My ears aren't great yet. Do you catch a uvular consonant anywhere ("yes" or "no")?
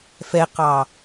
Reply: yes